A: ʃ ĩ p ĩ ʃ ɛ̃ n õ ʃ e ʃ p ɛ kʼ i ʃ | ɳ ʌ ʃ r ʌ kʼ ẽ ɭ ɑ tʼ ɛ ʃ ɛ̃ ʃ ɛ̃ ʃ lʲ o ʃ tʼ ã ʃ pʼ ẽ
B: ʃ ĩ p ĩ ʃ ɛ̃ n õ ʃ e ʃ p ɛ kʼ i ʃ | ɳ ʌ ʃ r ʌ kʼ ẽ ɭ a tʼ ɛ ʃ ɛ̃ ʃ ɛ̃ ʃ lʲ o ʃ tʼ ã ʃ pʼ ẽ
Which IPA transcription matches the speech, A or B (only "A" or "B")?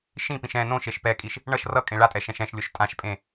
B